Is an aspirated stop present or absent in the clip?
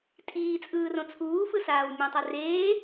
present